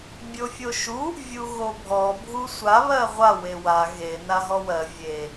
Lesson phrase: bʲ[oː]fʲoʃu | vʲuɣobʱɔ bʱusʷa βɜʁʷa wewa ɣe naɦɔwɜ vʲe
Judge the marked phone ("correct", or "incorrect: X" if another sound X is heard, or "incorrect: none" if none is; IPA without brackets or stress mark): incorrect: o